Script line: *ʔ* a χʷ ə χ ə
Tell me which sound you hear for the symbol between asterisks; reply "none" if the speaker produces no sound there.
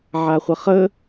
ʕ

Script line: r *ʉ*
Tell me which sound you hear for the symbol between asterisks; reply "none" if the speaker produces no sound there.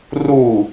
u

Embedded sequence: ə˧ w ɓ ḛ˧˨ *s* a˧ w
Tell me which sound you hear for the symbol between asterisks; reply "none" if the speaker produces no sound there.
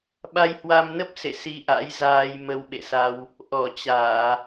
s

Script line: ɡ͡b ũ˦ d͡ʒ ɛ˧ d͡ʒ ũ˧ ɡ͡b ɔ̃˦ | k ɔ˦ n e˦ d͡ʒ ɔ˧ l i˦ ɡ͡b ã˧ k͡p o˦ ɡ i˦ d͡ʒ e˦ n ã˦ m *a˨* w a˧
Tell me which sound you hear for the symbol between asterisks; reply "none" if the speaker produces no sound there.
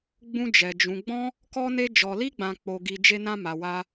a˧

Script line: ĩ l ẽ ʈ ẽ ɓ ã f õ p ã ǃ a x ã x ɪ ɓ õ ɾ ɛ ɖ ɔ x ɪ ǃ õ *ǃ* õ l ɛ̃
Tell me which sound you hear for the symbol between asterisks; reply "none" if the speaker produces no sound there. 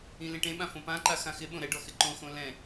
x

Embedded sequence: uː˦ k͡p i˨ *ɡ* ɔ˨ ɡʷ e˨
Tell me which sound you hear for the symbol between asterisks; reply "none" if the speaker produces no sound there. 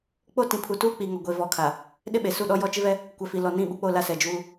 ŋ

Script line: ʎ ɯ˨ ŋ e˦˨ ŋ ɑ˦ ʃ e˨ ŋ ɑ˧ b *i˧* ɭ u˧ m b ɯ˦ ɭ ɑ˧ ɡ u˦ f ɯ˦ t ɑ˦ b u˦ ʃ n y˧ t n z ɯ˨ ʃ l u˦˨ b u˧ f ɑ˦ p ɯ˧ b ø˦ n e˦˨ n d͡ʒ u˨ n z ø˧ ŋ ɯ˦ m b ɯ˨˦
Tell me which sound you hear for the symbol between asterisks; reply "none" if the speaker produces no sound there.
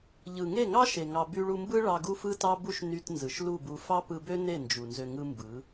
y˧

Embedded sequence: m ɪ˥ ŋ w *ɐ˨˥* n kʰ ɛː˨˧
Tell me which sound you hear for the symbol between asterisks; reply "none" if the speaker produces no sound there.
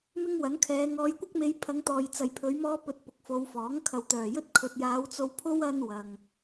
ɐ˨˥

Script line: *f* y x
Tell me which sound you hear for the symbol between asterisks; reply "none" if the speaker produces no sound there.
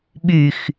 ɓ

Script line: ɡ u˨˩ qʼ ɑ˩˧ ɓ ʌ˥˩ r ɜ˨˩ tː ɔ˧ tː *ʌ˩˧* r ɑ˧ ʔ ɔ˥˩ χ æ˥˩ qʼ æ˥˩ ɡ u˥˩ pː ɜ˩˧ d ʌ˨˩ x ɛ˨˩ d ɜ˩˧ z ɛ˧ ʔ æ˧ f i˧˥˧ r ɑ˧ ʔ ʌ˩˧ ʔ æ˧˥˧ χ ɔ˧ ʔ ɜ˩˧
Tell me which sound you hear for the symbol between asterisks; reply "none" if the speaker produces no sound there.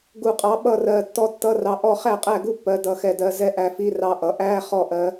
ʌ˧˥˧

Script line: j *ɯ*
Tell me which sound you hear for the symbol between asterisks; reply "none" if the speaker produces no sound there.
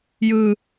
ɯ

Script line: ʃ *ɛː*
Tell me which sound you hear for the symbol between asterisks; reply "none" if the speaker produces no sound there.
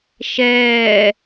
ɛː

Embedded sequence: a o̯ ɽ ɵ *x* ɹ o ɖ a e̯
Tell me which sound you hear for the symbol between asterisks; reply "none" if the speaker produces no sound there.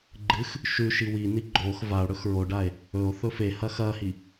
x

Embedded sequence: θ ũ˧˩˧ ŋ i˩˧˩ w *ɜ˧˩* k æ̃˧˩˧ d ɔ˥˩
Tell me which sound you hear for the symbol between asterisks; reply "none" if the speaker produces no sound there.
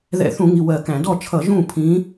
ɜ˧˩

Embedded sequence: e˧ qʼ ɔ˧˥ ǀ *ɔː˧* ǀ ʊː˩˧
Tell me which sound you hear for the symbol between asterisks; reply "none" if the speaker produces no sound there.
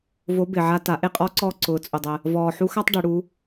ɔː˧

